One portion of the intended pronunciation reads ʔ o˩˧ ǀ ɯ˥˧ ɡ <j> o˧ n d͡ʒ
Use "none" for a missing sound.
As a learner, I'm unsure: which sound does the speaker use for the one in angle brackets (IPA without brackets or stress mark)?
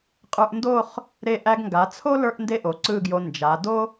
j